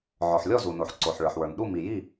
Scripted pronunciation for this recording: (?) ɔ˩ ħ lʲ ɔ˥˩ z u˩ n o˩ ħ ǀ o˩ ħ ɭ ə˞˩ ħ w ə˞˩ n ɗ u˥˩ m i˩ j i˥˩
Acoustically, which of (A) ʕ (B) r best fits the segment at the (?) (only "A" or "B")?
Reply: A